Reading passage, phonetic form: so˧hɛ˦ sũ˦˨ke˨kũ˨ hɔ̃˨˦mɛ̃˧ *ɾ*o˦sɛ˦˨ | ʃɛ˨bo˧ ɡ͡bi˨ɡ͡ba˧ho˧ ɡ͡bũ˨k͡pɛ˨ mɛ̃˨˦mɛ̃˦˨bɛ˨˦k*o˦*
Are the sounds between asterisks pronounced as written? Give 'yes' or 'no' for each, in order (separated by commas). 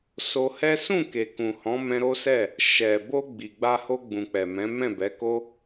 yes, yes